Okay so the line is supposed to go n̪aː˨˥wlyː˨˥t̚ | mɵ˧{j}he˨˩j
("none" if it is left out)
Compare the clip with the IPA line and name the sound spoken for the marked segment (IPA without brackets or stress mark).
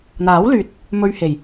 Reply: ɥ